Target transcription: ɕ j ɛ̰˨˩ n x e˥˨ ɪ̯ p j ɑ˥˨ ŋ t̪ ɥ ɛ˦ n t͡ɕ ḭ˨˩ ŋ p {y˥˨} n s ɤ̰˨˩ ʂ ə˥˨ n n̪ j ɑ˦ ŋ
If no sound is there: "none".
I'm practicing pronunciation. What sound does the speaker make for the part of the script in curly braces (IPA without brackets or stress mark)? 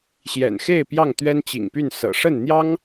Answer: y˥˨